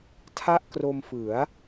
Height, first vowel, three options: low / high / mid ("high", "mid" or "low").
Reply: low